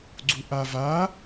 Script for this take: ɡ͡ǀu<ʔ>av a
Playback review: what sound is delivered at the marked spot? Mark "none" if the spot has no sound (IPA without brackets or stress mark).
ʔ